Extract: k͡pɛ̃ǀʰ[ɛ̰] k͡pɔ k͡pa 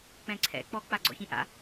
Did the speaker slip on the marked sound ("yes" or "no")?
no